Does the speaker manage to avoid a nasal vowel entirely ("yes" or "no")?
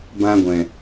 no